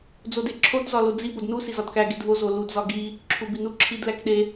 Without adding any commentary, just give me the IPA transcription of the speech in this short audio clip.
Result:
d͡z o d e ǁʰ o d z ɒ l o d͡z i b o d n u s i z ɒ d k æ ɡ e d v o z o l u d z ɒ ɡ i | ǁʰ u b i n u ǁʰ i d l æ k ɗ e

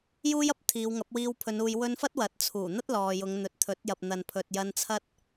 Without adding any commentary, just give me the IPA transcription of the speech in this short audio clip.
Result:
j uː˥ j ɐ˧ p̚ t̪ʰ iː˨˧ w ŋ ɐ˨˥ p̚ w iː˧ w pʰ ɵ˨˧ n uː˧ j w ɵ˧ n f ɐ˥ t̚ w ɐ˨˥ t̚ t͡sʰ uː˨˩ n̪ ɐ˥ t̚ l ɔː˨ j ʊ˨˧ ŋ n̪ ɵ˨ t̚ t̪ʰ ɵ˨˥ t̚ j ɐ˨ p̚ n̪ ɐ˨ n pʰ ɵ˨ t̚ j ɐ˧ n t͡sʰ ɐ˥ t̚

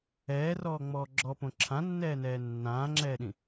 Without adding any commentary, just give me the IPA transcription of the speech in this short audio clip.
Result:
ɛː r ɔː ŋ͡m ɔː ɡ͡ǁ ɔ p õ ǁʰ ã nː ɛː n ɛː nː ãː ŋ͡ǁ ɛː ɗ ĩ

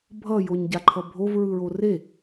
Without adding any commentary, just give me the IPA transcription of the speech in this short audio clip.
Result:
bʱ ʌ j o ɲ ɟ a ǃʰ ʌ bʱ o v ɹ ɯ ɹ o r e

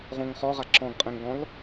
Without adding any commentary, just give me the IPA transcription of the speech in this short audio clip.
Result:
ʁ õ ŋ χ ɔ ʁ a ǁ ɔ̃ ɡ qʼ ɛ̃ ŋ ɡ ɔ̃ l

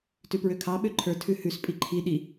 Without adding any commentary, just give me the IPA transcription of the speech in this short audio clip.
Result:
t ʉ p ɹ ø kʰ ɑ ɓ ø ǃʰ ə˞ tʰ ʉ h ʉ s pʼ i ǃʰ i ɗ i

